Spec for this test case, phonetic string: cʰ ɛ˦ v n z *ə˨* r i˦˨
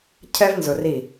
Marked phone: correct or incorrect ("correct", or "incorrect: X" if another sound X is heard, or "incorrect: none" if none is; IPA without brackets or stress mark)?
incorrect: ʊ˨